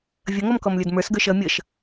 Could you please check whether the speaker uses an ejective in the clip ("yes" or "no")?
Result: no